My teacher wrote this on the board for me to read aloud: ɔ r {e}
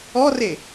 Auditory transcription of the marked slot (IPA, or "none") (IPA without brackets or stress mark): e